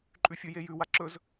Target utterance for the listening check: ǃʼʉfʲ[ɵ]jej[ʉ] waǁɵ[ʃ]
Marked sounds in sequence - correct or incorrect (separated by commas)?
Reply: incorrect, correct, incorrect